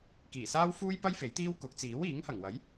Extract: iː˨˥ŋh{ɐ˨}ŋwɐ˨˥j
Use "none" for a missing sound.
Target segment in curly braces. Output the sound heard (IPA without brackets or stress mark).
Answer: ɐ˨˩